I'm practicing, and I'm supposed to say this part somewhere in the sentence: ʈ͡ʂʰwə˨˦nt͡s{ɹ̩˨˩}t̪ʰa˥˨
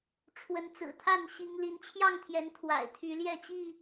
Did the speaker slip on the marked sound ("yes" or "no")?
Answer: no